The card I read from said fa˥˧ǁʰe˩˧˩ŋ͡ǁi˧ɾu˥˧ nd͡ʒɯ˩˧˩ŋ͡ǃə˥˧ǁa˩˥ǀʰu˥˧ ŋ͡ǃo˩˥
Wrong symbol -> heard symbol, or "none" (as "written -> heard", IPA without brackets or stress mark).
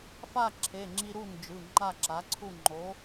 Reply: ə˥˧ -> a˥˧